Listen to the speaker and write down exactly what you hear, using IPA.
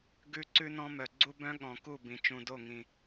ɡ ʉ˦ ǀ ʉ˦ n ɔ̃˦ m œ˨ ɡ͡ǀ u˦ b œ̃˦ ɠ ɔ̃˨ k u˦˨ b ĩ˨ t͡ʃ ũ˨ d o˦˨ ŋ ĩ˨

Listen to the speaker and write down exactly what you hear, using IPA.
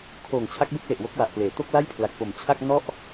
kʰ oː˨˩ ŋ t͡ɕʰ a˦˥ k̚ b e˥˩ k̚ l e˨˩ ʔ w o˦˥ k̚ w a˨˩ ʔ p l eː˩˦ t o˥˩ k̚ l a˥˩ j pʰ l a˨˩ k̚ p o˨˩ m t͡ɕʰ a˥˩ k̚ n ɔ˥˩ ʔ

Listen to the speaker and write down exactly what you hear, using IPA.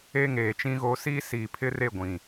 e˦ ŋ eː˨ t͡ʃ ĩ˦ ɣ o˦ s iː˦ s iː˨ pʰ ɪ˦ r e˦˨ ɡʷ ĩ˨

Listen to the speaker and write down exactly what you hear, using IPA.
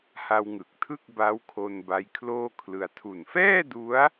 h a˧ w ŋ ɯ˨˩ k̚ tʰ ɯ˥˩ k̚ b a˦˥ w kʰ o˧ n b a˦˥ j kʰ l oː˥˩ kʰ l ɯ˧ a̯ tʰ u˨˩ n f ɛː˥˩ d u˦˥ a̯

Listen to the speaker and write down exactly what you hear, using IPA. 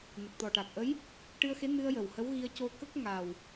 n ə˨˩ k̚ t̪ ɔ˨˩ ʈ a˨˩ k̚ ʔ ə˧˥ j | ʈ ɨ˧ ə̯ x e˧˥ n ɨ˧ ə̯ j ə˨˩ w h ə˧˥ w ɣ i˧ ə̯ c o˧ k ə˦˥ k̚ ŋ a˨˩ w

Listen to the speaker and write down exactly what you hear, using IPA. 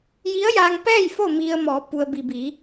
j i˧˥ ə̯ j aː˧ ŋ p ɛː˥˨ j f o˥˨ m i˧ ə̯ m ɔː˩˧ p u˩ ə̯ b i˩ b i˩˧

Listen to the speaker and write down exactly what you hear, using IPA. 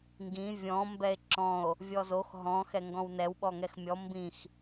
ŋ ɡ ĩ vʲ ɔ̃ m b ɛ e̯ ǁ ɔ̃ o̯ | vʲ ɔ z o x ɦ ɔ̃ x ɛ ŋ ɡ ɔ̃ w n ɛ w ɓ ɔ ŋ ɛ x mʲ ɔ m b ĩ x

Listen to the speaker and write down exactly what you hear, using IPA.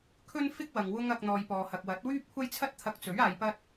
kʰ ɵ˥ n f ɪ˥ k̚ w ɐ˨ ŋ w ʊ˧ ŋ ɐ˨ k̚ n̪ ɔː˨ j p ɔː˨ h ɐ˨ k̚ w ɐ˨˥ t̚ w yː˥ p̚ kʷʰ ɐ˥ j t͡sʰ ɐ˥ t̚ t̪ʰ ɐ˧ k̚ t͡s ɵ˨˥ ɥ aː˧ j p ɐ˥ t̚

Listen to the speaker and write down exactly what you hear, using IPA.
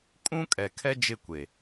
kʼ ũ˦ kʼ ɛ˨ kʰ ɛ˦ d͡ʒ ɪ˦˨ kʷ e˨

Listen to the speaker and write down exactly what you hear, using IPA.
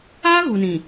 aː˦ ɣ u˨ n ĩ˨

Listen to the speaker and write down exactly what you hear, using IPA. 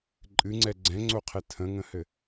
ǃʼ ɨ ŋ͡ǀ ɛ ɡ͡ǀ ɛ̃ ŋ͡ǀ o qʰ ɛ tʰ ə̃ ŋ ə̃ h ɘ

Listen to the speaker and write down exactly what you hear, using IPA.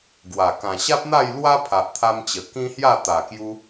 ɡ w a˨˩ k ã˨˩ ɕ a˦ p̚ n̪ a˥˧ j l w a˦ pʰ a˨ ʔ t̪ʰ a˧ m t͡ɕ ə˨˩ k ĩ˦ h j a˥˧ t̪ a˨˩ k j u˧

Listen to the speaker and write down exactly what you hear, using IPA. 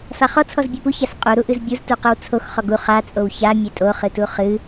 f a χ ɔ t͡sʰ ɔ z bʲ e p u ç a s qʼ u ɾ u ʔ ɨ z bʲ u z t u q ɨ w t͡sʰ o x χ ɔ ɡ u χ a t͡sʼ o w ç a mʲ e tʼ o χ ɨ t u χ ɨ

